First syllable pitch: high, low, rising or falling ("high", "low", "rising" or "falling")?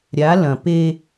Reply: rising